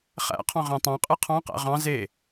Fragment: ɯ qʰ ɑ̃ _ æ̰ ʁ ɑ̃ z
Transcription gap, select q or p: q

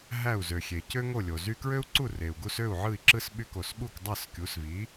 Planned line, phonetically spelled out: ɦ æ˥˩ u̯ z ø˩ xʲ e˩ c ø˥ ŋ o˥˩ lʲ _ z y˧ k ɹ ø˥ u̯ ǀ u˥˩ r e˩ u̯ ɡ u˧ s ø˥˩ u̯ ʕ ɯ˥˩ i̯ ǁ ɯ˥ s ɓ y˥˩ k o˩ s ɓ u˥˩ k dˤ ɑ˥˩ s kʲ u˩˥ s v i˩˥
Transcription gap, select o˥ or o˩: o˩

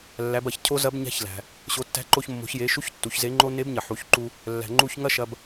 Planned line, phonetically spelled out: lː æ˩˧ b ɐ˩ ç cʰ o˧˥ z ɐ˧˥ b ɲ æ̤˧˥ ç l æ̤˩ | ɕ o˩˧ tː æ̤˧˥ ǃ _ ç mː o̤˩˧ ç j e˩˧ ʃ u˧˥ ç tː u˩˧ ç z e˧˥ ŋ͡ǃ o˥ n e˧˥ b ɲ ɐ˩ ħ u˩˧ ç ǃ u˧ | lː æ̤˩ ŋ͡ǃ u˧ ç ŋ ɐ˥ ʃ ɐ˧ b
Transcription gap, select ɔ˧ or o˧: o˧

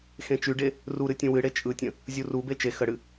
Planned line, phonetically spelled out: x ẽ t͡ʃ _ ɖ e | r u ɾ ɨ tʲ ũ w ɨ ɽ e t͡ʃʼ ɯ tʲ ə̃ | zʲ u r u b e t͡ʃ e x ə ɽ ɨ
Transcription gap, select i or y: y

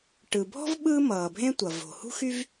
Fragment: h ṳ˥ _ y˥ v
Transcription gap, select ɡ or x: x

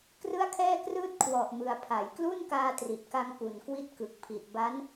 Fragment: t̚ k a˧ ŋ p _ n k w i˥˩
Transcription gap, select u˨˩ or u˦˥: u˨˩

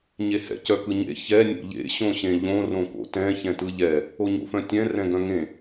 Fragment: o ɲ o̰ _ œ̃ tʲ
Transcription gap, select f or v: f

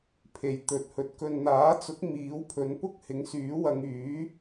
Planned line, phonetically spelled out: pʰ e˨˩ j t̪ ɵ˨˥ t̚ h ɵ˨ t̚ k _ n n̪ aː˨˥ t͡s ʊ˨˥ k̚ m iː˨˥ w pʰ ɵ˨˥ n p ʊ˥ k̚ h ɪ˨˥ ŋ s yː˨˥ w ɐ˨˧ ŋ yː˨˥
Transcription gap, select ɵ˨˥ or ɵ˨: ɵ˨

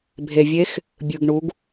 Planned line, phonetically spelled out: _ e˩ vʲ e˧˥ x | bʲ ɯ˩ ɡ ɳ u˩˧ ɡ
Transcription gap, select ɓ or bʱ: bʱ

